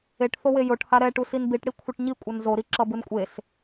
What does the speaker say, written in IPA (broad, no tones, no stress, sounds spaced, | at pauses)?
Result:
e ʈ θ o w e j o ʈ h a ɾ ɛ ʈ u s i n b i ʈ ɽ i kʷʰ ɯ ʈ ɲ i kʷʼ ʌ n z o ɾ i ǁ ʌ b ɯ n kʷʼ e s